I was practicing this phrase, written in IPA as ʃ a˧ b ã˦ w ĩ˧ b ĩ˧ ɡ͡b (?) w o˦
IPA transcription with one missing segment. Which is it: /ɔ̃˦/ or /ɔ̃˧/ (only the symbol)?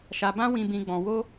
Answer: ɔ̃˧